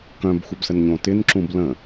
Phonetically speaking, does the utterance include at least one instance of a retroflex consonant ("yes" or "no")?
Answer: no